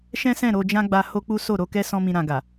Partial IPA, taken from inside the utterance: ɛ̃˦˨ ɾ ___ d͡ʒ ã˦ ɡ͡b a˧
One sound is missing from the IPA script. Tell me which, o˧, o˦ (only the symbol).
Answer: o˧